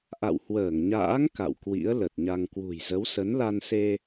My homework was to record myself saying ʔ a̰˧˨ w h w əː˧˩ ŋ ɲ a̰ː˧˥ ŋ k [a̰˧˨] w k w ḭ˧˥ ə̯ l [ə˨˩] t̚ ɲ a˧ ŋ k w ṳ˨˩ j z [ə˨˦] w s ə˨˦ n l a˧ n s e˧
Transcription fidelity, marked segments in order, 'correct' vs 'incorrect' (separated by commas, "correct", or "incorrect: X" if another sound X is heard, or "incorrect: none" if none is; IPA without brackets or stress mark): correct, correct, correct